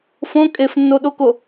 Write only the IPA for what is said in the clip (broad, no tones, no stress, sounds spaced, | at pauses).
f õ kʼ e f nː o ɗ o k o